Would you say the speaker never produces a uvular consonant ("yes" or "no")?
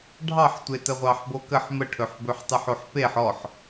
no